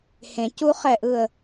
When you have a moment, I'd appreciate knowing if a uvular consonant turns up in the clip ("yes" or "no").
yes